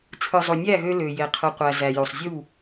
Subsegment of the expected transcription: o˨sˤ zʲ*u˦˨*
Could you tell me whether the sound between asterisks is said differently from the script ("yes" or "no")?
no